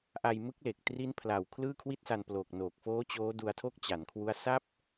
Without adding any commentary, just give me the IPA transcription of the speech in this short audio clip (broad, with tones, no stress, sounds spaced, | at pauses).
ʔ a˧ j m ɯ˦˥ k̚ l e˨˩ k̚ t r i˦˥ n pʰ l a˨˩ w kʰ l ɯː˥˩ kʰ w i˥˩ t̚ s a˧ n p l o˨˩ k̚ n oː˨˩ k̚ f oː˦˥ t͡ɕ oː˦˥ d u˧ a̯ tʰ o˥˩ k̚ t͡ɕ a˩˦ n kʰ w u˦˥ a̯ s a˥˩ p̚